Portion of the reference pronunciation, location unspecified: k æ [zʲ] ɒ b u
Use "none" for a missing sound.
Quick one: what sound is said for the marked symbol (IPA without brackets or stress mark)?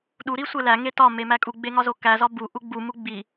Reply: z